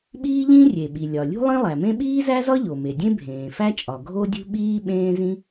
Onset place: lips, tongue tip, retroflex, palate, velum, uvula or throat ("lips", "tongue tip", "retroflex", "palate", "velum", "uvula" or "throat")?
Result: lips